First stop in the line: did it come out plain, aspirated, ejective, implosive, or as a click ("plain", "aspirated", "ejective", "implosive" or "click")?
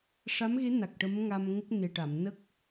plain